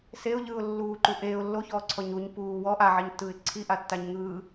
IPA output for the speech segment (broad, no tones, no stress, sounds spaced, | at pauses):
s e ʊ̯ ʎ ɯː ʊ̯ lː uː ǃ u ʔ eː ʊ̯ lː o ç ɔː ǀʰ ɔ ɲ u ɲ p uː w ɔ ʔ a ʕ i ɲ tː ɯː ɪ̯ ǀʰ i ʔ a tː a ɲ ŋ ɯː